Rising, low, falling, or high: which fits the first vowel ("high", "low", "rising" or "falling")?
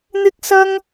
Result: high